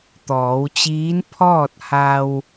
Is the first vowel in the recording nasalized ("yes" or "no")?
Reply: no